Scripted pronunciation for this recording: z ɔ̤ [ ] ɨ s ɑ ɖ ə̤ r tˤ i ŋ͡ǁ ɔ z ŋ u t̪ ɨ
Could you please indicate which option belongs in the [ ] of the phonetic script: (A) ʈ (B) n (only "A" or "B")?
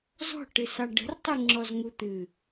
A